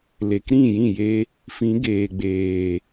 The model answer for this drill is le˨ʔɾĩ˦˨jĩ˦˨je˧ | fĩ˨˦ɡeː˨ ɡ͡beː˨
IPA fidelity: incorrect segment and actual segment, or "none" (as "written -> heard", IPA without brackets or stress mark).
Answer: ʔ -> k